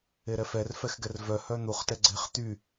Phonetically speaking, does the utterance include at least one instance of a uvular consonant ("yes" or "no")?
yes